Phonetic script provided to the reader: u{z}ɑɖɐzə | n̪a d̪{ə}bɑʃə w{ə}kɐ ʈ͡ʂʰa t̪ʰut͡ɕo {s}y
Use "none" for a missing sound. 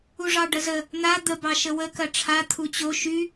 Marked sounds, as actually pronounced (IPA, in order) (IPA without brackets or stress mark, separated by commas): ʐ, ə, ə, ʃ